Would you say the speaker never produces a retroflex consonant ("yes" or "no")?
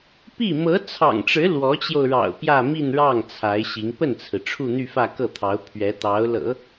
no